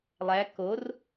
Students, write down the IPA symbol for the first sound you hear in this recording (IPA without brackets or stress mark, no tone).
lˠ